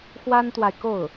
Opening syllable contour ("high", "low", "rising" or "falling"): high